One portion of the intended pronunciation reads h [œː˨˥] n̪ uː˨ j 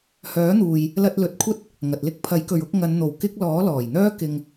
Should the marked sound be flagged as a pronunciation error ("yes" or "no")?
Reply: no